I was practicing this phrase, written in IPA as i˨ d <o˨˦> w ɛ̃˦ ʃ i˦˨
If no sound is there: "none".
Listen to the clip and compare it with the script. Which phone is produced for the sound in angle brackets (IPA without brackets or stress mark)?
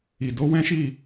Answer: o˨˦